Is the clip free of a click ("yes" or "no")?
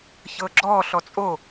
no